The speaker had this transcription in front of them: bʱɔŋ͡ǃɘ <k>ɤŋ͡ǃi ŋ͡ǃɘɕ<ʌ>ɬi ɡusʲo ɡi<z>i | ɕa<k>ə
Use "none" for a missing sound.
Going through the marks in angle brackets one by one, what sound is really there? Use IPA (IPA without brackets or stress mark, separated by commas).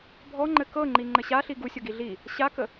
k, a, ɮ, k